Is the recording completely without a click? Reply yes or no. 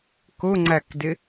no